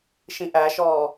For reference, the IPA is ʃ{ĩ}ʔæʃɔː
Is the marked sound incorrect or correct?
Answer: correct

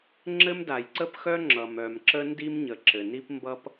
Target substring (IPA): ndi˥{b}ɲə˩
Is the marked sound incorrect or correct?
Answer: incorrect: m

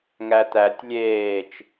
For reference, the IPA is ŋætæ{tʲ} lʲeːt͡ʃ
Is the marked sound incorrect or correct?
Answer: correct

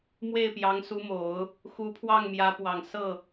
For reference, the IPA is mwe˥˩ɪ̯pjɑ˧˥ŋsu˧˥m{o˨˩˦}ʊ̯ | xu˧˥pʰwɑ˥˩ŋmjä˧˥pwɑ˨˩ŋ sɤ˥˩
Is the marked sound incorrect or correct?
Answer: correct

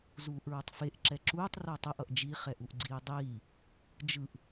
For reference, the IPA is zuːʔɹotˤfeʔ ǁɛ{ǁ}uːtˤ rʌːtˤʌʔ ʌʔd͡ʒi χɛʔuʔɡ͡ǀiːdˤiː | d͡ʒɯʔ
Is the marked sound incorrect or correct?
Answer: correct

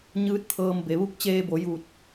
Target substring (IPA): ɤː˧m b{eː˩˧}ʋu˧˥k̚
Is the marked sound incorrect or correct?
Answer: incorrect: e˩˧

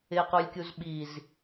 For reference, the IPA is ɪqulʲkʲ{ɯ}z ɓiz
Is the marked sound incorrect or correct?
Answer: incorrect: u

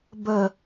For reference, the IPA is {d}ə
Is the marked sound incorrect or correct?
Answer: incorrect: b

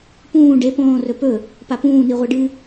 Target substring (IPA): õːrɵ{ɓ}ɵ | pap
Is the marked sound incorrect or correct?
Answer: incorrect: p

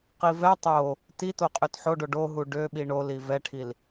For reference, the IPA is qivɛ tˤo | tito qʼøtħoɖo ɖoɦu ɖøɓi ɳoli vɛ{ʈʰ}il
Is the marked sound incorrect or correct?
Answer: correct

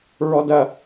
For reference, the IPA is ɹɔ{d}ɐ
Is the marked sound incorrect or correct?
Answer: correct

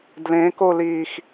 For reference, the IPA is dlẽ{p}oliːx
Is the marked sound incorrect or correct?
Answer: incorrect: k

